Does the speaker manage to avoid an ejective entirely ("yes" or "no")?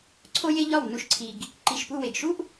yes